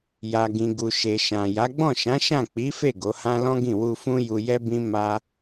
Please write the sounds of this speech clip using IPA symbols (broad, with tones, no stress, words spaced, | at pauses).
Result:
ja˨ɡĩ˨ɡu˨ ʃe˨ʃã˨ja˨˦ ɡ͡bɔ̃˦˨ʃã˨˦ʃã˦˨ k͡pi˨˦fe˦˨ ɡo˨˦hã˦ lɔ̃˦ ɡĩ˦˨wu˧fũ˦ju˧ jɛ˦bĩ˦ ma˦